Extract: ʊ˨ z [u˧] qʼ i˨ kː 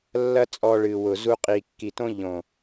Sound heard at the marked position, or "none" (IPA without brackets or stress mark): u˧